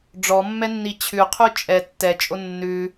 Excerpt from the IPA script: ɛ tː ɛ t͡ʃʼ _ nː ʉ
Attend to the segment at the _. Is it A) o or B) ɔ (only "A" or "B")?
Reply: A